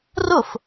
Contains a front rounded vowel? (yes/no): no